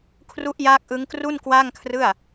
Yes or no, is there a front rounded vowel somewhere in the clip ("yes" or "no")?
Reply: no